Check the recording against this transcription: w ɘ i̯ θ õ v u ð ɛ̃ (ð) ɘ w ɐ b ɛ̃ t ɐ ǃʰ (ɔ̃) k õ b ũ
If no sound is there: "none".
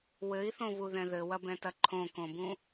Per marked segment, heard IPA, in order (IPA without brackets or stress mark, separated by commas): ð, õ